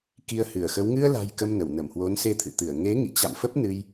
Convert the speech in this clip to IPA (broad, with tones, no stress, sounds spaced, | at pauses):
k i˧ ə̯ h ɨ˧˩ ə̯ x ə˨˦ w ŋ ɨ˧ ə̯ l a̤˨˩ j k ə˧ m n ə˧˩ w n ə˧˩ m h w o˨˦ n s e˧ t̪ʰ ɨ̰˧˨ t̪ ɨ˧˩ ə̯ ŋ e˨˦ ŋ ḭ˧˨ t͡ɕ a̰˧˨ m f ə˦˥ p̚ n ɨ˧ j